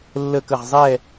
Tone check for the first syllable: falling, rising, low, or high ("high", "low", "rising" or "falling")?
falling